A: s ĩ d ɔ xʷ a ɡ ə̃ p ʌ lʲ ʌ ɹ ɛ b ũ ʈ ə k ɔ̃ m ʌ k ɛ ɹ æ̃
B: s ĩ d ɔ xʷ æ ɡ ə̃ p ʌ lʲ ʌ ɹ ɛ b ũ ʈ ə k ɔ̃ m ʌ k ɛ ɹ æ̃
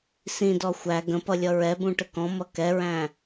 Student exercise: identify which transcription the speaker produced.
B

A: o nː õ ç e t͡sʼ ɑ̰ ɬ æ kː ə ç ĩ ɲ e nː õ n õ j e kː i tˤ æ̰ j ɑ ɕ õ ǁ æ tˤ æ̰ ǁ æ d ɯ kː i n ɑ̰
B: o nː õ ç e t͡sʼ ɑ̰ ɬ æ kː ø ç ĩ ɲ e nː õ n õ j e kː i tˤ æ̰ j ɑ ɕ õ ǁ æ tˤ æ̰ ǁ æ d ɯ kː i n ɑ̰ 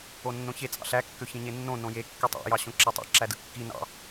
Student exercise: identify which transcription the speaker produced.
B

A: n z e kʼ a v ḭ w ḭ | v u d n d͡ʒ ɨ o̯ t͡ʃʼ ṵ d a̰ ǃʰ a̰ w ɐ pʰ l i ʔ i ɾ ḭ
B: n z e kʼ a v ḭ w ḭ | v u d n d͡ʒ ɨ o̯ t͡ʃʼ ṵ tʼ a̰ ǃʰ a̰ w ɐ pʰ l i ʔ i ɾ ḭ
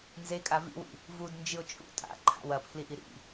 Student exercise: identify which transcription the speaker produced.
B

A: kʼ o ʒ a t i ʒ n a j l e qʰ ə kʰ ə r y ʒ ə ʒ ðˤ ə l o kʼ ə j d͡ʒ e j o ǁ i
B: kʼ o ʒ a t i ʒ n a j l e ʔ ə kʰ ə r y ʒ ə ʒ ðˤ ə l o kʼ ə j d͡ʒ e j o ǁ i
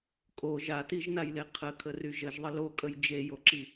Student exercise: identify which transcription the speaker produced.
A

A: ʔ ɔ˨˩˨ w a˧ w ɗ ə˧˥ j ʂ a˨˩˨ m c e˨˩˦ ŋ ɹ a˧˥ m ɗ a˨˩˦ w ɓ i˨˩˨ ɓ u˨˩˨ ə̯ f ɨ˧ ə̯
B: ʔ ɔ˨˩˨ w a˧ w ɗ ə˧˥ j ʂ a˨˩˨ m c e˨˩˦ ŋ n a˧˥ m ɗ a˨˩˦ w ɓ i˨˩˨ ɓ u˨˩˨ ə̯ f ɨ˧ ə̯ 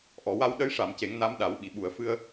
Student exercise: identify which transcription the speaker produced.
B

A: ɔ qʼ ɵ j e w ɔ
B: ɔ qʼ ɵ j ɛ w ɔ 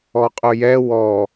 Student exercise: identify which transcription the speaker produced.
B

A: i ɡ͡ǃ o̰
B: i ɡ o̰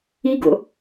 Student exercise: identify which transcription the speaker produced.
B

